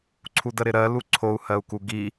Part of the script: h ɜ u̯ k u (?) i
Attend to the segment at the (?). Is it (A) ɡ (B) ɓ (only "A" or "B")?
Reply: A